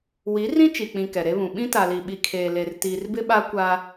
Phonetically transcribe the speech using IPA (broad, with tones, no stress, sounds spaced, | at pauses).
w i˨˦ r ĩ˦ t͡ʃ i˨ k͡p ĩ˨ k ɛ˨ ɾ e˦ β ũ˨ ɓ ĩ˦ t a˨ l i˨ ɓ i˨ kʰ eː˨ l e˨ r t iː˨ r b ɪ˦ ɓ a˦ kʷ a˦